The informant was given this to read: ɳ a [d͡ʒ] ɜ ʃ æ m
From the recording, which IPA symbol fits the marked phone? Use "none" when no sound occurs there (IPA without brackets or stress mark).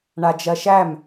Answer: d͡ʒ